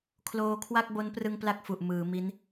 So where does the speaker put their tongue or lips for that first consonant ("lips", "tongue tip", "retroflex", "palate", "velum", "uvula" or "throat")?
velum